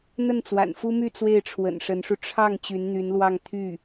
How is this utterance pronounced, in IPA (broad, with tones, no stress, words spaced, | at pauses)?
n̪ə˥˩nt͡swa̰˨˩nfu˥my˥˧ t͡swe˥˩ɪ̯ʈ͡ʂʰwə̰˨˩nʂə˧˥nʂu˧ ʈ͡ʂʰɑ˥˩ŋ t͡ɕy˧˥nn̪y˧˥nlwɑ˥˧ŋ t̪ʰy˥˩